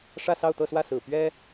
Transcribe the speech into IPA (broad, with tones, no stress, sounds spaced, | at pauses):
ʂ ä˥˧ s ɑ˥˧ ʊ̯ t̪ ɤ˥˧ s w ä˥˩ s ɹ̩˨˩ p ɥ ɛ˥